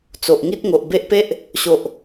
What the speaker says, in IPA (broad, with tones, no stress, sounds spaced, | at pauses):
t͡s o˨ ʔ ŋ i˦ t̚ ŋ o˨ ʔ b e˦ ʔ p e˦ ʔ | ɕ o˨ ʔ